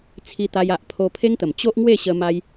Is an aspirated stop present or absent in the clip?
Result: present